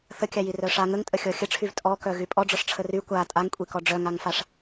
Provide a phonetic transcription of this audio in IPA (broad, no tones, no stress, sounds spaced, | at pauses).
θ ə kʲ a j i r œ ʂ a ŋ ə ŋ tʼ ə xʲ ɔ xʲ ə ʈ͡ʂʰ y v tʼ ɔ k œ ɣ y pʼ ɔ ɖ͡ʐ ɔ ʂ ʈ͡ʂʰ ə r y kʷ a tʼ a ŋ kʷʼ i k ɔ ɖ͡ʐ œ ŋ a ŋ f a ʂ